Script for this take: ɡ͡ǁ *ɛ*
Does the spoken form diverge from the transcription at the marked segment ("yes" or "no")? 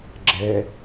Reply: no